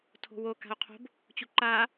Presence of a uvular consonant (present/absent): present